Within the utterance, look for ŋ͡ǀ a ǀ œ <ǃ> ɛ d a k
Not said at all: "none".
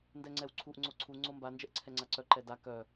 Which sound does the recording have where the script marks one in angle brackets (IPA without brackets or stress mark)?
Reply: ǃ